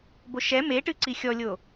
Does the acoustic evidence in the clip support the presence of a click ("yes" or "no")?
yes